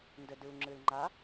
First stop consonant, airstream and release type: plain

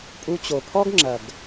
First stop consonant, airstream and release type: ejective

